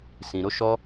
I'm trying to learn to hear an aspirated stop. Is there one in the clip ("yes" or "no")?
no